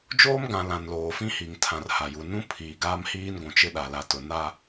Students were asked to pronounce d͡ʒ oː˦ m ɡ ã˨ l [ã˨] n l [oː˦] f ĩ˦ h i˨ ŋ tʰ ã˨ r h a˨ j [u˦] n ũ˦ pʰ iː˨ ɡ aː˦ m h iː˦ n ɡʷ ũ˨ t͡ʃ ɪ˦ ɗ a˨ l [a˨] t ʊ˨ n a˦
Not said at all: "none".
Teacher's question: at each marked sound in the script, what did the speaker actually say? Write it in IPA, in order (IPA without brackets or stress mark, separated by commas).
ã˨, oː˨, u˨, a˨